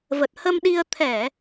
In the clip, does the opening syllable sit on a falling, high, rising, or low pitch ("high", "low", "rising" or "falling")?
low